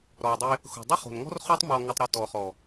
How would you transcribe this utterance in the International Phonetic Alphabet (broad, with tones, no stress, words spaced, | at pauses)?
ɾɔ˨ dˤe˧ | xo̤˨dˤʊ˦χo̤˨nŋɔ̤˦r χo˦tˤmɔ˧ ŋʊ˧tˤɾʊ˧ tɔ˨χɔ˨